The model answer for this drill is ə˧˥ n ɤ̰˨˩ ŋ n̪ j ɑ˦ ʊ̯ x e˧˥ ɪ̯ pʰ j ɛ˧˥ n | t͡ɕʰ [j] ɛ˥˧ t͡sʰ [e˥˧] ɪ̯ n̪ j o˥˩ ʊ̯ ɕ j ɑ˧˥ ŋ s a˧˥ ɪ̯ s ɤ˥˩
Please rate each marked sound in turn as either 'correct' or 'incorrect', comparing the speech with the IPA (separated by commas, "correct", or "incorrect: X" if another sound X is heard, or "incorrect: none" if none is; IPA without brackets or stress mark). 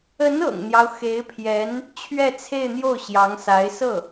incorrect: ɥ, correct